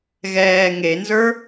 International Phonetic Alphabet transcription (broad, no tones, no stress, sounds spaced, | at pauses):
ɣ ɛː ŋ e n z ə˞